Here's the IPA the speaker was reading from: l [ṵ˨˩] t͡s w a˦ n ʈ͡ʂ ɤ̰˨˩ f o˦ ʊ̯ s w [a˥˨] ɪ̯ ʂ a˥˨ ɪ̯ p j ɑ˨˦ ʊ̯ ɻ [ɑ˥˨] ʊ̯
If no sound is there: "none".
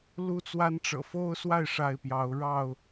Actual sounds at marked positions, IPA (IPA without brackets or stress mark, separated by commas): u˦, a˥˨, ɑ˥˨